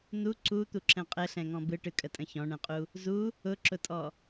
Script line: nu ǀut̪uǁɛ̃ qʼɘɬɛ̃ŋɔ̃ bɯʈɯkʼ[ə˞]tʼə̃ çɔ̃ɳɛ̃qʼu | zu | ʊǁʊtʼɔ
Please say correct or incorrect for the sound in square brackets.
incorrect